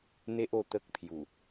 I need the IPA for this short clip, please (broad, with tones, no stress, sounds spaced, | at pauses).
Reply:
n̪ e˦ ʔ o˧ t̪ ə˦ k̚ pʰ j u˨˩